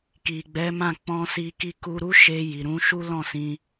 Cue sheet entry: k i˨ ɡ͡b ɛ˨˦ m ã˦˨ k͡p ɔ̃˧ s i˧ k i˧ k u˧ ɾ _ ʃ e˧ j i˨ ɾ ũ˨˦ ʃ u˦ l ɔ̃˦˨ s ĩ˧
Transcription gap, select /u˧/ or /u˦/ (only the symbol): u˦